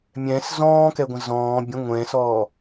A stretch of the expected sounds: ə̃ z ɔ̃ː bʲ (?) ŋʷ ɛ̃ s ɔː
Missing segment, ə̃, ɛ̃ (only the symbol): ə̃